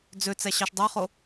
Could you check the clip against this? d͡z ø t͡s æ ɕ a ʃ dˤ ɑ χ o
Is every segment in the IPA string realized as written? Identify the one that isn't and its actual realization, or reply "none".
a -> ɑ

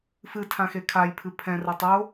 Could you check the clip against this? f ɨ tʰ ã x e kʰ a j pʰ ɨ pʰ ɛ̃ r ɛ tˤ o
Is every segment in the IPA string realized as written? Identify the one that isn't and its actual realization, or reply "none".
none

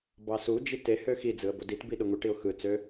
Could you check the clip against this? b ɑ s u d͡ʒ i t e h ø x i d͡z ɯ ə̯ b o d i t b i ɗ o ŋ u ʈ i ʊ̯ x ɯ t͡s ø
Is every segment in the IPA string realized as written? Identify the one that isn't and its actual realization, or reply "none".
none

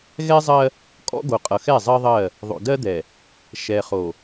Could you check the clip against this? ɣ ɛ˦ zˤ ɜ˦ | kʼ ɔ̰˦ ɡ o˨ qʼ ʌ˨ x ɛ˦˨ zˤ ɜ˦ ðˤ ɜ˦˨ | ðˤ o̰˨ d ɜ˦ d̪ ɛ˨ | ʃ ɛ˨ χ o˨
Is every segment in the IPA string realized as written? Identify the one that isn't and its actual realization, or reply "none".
none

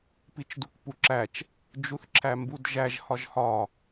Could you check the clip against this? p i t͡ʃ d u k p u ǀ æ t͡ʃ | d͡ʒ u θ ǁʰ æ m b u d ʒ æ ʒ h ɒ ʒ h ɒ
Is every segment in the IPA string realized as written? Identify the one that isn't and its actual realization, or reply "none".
ǀ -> ǁ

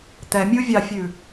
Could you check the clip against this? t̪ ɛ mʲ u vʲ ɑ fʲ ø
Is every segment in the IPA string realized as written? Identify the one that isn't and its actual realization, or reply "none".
ø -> ʉ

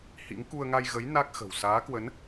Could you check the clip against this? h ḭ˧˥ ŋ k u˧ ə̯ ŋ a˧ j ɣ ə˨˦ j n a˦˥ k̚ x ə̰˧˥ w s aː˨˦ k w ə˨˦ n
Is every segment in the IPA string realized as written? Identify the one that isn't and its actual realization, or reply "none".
ə̰˧˥ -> ə̤˨˩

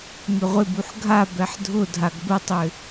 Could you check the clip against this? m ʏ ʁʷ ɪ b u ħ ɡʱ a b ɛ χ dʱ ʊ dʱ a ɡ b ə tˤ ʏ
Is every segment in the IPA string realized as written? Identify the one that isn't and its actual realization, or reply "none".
χ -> ħ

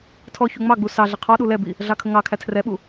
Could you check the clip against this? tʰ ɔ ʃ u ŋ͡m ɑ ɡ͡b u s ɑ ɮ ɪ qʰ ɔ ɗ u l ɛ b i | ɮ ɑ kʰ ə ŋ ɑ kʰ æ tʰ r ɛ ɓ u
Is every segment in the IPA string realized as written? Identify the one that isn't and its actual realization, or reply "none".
ʃ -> ç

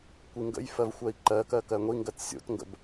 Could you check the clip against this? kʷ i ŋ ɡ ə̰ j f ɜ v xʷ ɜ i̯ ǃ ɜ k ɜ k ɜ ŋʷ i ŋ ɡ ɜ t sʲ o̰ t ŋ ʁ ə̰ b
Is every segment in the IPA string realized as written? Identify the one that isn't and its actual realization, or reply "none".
ʁ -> ɡ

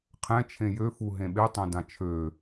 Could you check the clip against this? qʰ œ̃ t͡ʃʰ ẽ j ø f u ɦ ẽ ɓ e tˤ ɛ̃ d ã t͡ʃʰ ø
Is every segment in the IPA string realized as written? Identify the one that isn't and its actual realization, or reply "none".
œ̃ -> ɛ̃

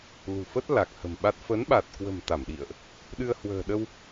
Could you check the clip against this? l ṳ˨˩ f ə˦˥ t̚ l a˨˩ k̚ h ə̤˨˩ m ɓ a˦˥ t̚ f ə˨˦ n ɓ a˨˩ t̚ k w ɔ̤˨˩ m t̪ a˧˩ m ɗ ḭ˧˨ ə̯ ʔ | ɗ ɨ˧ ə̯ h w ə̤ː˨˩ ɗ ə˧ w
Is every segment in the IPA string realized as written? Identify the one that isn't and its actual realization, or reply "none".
ɔ̤˨˩ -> ə̤˨˩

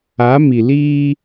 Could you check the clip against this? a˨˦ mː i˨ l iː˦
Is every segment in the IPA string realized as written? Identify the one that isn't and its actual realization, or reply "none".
mː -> m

